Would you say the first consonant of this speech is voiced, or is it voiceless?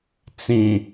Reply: voiceless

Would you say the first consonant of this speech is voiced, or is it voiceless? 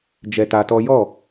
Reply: voiced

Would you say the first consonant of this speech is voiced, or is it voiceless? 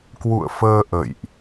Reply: voiceless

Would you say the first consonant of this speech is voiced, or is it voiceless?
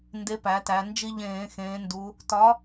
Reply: voiced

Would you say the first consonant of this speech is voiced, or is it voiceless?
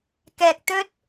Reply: voiceless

